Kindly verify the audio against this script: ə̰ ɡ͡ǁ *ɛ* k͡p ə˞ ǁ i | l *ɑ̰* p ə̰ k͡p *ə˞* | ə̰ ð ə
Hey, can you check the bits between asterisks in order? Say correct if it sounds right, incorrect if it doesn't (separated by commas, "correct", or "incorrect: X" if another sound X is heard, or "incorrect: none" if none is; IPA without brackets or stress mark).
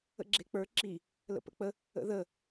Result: incorrect: e, incorrect: ə̰, incorrect: ə